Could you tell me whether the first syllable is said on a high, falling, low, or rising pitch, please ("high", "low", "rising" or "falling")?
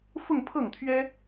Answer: falling